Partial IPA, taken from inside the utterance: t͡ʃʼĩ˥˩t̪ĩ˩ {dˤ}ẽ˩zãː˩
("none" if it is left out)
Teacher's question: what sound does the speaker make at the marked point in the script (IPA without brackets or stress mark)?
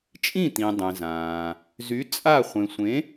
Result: dˤ